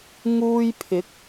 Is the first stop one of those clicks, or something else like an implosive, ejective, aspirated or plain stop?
aspirated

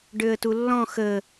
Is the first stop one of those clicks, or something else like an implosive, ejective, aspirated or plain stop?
plain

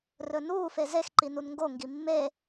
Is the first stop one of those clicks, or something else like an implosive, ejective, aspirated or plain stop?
click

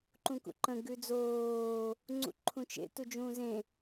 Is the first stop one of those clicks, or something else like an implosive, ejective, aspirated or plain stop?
click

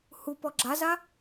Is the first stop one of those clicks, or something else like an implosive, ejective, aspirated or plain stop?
plain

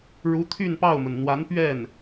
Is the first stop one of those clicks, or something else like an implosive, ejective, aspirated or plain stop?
aspirated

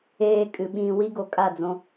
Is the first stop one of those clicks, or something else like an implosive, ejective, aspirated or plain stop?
ejective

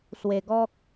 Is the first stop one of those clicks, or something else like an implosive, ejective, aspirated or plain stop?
plain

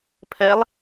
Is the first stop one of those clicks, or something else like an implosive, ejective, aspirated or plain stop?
aspirated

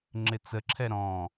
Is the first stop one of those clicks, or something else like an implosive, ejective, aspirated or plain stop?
click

